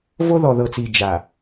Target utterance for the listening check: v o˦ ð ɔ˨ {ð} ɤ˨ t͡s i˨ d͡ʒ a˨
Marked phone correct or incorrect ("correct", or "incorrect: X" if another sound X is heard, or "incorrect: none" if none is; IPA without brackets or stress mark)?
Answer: correct